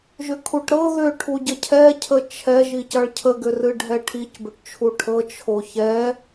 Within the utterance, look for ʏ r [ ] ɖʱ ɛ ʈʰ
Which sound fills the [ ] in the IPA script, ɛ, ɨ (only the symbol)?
ɨ